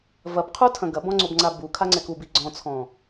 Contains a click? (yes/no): yes